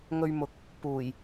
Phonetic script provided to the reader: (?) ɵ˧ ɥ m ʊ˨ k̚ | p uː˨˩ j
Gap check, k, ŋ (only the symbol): ŋ